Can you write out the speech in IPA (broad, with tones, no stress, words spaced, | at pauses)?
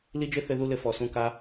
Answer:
li˦d͡ʒɘ˦ θɘ˦ðu˦lɘ˧ fɔ˨sũ˧ ka˧